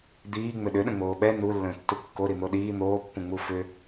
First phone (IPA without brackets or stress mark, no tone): d̪